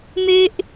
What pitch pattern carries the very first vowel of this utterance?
high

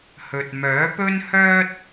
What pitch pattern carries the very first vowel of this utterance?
low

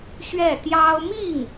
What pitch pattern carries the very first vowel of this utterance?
falling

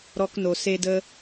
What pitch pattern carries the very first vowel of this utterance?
high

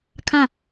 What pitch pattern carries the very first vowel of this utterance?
falling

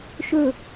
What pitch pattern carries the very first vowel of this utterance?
falling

